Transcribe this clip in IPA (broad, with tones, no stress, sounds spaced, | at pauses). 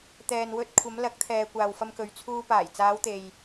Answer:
t̪ ɛː˨ n w ɵ˧ t̚ kʷʰ ɐ˨˧ m l ɐ˨˥ k̚ t̪ʰ ɛː˨ kʷ aː˨ w f ɐ˧ m k ɵ˨˧ ɥ t͡sʰ uː˧ p aː˨˩ j t͡s aː˨˧ w t̪ e˨ j